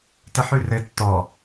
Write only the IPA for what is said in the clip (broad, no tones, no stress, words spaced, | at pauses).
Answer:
təħʉrɘ tːɔ